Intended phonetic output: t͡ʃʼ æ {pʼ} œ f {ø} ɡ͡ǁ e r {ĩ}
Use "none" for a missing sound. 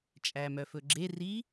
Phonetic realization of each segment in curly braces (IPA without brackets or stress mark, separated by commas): m, ɵ, i